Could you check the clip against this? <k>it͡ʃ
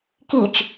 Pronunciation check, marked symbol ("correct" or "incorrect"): correct